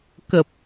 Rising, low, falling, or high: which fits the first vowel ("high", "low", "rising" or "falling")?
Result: low